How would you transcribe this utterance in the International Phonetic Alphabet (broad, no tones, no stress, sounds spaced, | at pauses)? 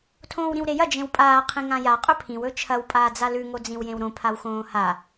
tʰ õː w ɾ ĩ w ɾ e j ɐ d͡ʒ ẽ w pʼ aː qʰ ĩ ŋ ã j a qʼ ɵ pʰ ĩ w ɵ t͡ʃʰ ɐ w pʼ aː d͡z a l ʉ ŋ o d͡z ĩ w j ẽ w ɾ õ pʰ a w x õː h a